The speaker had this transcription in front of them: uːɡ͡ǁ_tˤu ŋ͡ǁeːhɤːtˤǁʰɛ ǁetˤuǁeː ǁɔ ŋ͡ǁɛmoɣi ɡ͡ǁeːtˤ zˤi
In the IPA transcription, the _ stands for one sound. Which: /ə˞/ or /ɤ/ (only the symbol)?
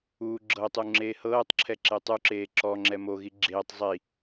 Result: ɤ